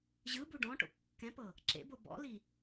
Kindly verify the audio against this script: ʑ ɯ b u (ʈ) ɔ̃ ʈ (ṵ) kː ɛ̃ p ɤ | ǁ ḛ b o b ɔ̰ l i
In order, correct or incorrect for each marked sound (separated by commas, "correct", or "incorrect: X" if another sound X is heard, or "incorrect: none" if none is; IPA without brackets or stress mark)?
incorrect: ɖ, incorrect: o̰